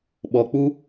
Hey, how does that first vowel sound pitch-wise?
low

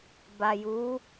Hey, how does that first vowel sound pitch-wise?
low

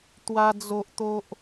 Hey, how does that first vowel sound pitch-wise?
high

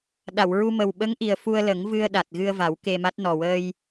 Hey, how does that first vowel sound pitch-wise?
low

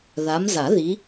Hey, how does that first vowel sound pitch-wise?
rising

